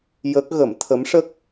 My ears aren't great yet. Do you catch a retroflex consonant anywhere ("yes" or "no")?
yes